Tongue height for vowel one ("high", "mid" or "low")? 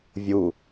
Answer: high